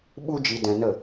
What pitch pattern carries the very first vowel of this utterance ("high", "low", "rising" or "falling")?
high